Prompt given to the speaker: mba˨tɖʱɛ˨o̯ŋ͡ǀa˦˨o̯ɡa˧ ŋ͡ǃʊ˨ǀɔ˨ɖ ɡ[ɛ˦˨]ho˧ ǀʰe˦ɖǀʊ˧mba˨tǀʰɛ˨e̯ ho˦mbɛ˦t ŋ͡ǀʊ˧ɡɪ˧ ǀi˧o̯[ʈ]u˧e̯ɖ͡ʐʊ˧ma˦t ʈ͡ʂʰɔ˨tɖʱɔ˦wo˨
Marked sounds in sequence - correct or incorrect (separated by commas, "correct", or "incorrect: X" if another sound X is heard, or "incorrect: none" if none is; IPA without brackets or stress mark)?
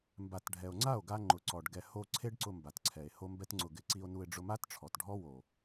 incorrect: ɛ˨, incorrect: n